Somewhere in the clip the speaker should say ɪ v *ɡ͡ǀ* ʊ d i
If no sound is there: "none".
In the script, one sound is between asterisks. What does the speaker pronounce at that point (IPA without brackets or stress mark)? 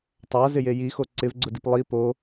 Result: ɡ͡ǀ